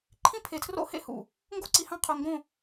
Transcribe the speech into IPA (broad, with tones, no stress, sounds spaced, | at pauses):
ǃʰ ĩ˦ pʰ e˨ tʰ r o̰˦ h ḛ˦ h ṵ˨ | ŋ ɡ o˦ ǀ i˨ h ɑ̃˦ qʰ o˨ ŋ ɡ õ˦˨